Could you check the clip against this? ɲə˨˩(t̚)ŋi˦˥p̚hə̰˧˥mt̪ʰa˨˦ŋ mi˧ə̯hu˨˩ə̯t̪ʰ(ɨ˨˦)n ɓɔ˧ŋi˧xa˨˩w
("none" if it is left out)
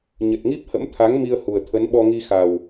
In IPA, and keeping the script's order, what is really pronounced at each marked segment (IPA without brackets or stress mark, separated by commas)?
t̚, ə˨˦